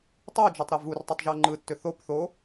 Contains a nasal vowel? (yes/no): no